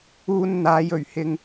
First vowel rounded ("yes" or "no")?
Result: yes